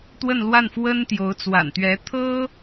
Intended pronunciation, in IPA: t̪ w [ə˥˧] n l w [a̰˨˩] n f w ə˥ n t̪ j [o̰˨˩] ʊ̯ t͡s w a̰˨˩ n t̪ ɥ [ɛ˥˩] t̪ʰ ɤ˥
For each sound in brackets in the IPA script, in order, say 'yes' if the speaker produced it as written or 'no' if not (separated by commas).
yes, no, no, no